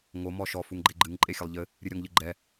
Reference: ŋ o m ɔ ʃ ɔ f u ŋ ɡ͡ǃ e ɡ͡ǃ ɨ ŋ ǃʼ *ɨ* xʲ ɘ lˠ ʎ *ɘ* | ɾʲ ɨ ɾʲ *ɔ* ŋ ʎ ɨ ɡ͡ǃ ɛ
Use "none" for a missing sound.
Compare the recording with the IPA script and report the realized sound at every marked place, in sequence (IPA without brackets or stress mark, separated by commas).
e, ɘ, ɔ